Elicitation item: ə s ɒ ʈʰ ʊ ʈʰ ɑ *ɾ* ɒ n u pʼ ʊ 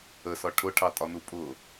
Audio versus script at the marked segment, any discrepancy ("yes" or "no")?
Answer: yes